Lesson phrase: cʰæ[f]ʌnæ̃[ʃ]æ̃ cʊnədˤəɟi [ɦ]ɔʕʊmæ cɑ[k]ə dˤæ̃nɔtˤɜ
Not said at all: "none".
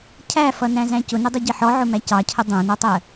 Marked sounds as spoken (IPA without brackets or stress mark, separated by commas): f, z, ħ, cʰ